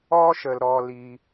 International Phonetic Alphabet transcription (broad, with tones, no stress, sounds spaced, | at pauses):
ɔ˦ ʃ ə˩ l ɾ ɔ˩ l i˩